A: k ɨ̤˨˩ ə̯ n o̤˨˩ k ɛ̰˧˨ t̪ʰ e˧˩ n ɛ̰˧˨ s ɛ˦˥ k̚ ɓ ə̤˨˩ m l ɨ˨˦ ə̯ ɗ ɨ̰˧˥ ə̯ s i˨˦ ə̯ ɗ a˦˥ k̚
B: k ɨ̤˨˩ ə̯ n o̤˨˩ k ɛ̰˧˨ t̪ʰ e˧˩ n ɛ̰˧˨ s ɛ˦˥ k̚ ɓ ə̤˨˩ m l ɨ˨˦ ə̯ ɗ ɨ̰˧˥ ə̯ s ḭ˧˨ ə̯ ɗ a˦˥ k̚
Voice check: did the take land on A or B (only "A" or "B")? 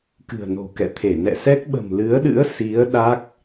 A